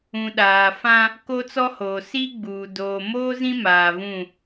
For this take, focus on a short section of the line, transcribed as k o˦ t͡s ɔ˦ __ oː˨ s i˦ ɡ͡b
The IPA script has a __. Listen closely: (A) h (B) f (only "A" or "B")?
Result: A